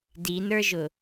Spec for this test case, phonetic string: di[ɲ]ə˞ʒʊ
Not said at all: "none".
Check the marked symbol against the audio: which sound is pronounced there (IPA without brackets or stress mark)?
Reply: n